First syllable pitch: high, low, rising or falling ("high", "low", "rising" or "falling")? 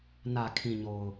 low